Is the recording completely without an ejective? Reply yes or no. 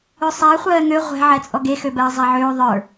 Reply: no